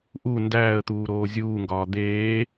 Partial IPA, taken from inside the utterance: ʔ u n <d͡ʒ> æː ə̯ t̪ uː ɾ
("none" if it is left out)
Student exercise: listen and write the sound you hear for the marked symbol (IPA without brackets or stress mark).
d